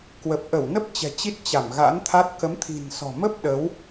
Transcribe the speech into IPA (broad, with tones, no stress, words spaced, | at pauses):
kwə˨˩p̚ʔə˧˩wnə˦˥p̚ t͡ɕɛ̤˨˩t͡ɕi˦˥t̚ t͡ɕa˧˩mɣa̰˧˥nt̪ʰa˦˥t̚ kə˨˦mt̪ʰi̤˨˩nsɔ̤˨˩mə˦˥p̚ ɗə˨˦w